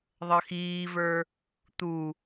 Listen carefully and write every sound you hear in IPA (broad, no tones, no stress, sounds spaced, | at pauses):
ðˤ ʌ x iː v ə˞ | t̪ u